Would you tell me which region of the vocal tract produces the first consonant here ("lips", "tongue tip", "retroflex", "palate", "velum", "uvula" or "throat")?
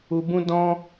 lips